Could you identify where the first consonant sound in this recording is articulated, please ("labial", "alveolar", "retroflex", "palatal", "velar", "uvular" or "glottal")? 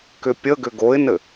velar